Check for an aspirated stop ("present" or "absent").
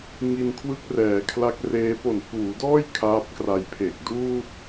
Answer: present